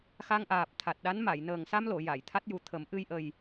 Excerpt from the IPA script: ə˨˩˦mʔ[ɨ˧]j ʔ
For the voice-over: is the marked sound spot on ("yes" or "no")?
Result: yes